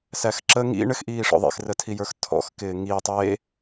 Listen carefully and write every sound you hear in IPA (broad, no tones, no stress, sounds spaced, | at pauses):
s æ x ǁ ə ŋ ḭ ɳ ɘ x ʔ iː ʂ ɔ̰ ðˤ ḭ x r ə tʰ i j ə˞ x tʰ ɔ̰ x k ɪː ŋ i tˤ e